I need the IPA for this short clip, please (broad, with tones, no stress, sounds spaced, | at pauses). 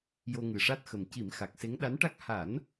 j o˧ ŋ ɨ˨˩ ʂ a˦˥ t̚ x ə˨˩ m c i˨˩˦ m x a˨˩ k̚ s e˧˥ ŋ ɗ a˧˥ n ʈ a˦˥ k̚ h a˨˩˦ n